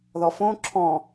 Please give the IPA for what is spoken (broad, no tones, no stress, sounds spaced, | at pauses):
ð ɔ f õ ǁʰ ɔ̃